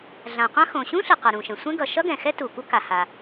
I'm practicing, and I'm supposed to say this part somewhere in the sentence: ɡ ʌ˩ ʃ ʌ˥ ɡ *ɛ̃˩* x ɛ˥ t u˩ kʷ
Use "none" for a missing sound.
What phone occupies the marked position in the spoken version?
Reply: ɛ̃˩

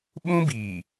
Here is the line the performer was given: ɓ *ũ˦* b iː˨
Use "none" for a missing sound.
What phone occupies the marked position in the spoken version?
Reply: ũ˦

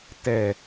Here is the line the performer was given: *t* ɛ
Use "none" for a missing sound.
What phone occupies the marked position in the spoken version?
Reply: t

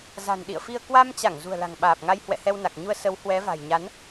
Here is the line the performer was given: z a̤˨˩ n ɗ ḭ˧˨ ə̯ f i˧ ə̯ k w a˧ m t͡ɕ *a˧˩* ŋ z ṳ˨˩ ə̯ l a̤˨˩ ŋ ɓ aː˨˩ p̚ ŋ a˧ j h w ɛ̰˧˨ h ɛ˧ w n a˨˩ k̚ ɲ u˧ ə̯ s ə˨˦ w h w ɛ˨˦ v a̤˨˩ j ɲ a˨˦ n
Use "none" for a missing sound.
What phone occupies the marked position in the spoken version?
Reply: a˧˩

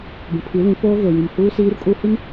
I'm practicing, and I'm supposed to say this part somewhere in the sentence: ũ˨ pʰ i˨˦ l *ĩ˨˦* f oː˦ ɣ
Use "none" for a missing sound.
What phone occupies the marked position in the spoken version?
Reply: ĩ˨˦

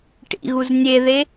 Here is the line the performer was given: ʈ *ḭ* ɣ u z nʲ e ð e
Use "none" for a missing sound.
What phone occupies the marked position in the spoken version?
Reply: ḭ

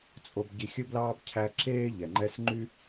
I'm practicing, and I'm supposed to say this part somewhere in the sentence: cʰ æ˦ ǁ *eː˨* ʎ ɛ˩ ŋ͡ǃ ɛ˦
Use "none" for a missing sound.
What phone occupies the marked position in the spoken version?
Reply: eː˥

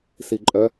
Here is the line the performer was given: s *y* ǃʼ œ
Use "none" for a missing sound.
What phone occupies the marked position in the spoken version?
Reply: i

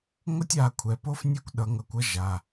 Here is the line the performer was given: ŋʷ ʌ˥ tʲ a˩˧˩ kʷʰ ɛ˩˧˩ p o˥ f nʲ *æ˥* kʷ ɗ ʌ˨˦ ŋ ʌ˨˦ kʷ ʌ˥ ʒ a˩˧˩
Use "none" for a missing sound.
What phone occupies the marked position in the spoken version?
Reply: ɛ˥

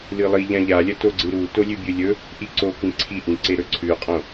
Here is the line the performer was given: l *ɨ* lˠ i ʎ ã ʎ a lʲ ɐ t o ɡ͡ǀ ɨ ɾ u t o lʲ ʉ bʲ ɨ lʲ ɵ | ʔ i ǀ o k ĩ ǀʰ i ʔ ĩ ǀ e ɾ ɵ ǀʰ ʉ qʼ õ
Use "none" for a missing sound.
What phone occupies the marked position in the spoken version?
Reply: ɨ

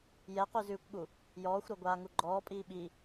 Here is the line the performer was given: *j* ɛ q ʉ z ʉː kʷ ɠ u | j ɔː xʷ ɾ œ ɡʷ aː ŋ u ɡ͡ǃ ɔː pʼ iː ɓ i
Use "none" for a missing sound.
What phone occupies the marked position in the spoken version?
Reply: j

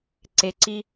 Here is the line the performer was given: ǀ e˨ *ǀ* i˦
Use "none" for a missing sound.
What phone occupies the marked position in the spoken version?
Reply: ǀ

